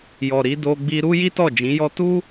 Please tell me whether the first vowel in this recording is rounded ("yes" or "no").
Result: yes